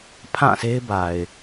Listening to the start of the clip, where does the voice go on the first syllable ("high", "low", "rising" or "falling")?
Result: falling